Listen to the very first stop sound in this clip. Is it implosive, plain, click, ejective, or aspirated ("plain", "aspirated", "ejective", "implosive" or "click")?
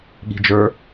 implosive